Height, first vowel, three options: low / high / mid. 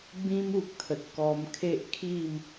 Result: high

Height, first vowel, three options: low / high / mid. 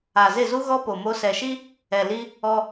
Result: low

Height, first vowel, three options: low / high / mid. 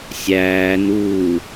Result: low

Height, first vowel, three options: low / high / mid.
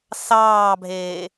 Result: low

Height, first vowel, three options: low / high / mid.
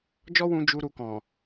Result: mid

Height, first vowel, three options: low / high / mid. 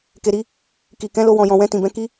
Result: mid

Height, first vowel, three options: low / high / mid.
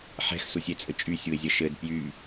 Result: mid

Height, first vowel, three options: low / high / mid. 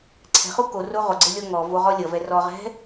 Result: mid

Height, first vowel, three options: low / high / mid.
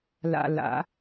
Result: low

